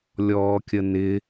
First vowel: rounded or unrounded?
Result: rounded